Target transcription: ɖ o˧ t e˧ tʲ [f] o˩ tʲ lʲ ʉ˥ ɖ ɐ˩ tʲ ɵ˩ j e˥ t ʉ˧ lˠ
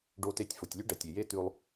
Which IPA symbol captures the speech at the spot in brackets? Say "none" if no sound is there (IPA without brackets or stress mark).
f